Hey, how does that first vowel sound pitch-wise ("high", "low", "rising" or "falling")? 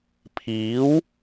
rising